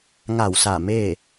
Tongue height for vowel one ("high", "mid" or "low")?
low